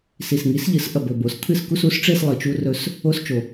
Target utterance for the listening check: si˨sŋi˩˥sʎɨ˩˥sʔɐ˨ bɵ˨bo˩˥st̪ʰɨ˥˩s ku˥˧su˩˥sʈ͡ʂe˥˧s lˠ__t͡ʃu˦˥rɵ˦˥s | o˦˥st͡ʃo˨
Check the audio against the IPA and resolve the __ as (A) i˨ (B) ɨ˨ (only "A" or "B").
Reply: B